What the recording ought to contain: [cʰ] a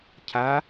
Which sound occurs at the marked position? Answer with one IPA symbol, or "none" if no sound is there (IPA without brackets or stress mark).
cʰ